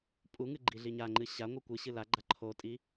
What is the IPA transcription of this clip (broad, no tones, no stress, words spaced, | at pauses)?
pʼuŋɨ ɡ͡ǃiɮiɲaŋ͡ǃɨ ɕaŋʷɨ kʷɨ ɕɨlaɡ͡ǃa ǃʰotʼi